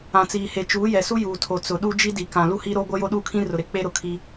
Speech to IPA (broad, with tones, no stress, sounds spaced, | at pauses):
ã˨ t͡s iː˨ h e˨ t͡ʃ uː˨˦ j ɛ˨ s u˦ j uː˨ tʰ o˨ t͡s ʊ˨ ɗ u˦ d͡ʒ i˦ d i˨ k ã˨ l u˦ h i˦ ɾ o˦ ɡʷ ɛ˦ j o˦ ɗ uː˦ kʰ ĩ˦ r ʊ˨ ɾ e˨ k͡p e˦ ɾ ʊ˨ kʰ i˦